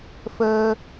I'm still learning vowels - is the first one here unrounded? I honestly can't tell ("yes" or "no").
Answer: yes